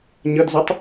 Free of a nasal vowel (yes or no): yes